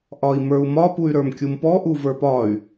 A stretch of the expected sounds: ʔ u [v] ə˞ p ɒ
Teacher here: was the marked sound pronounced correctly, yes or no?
yes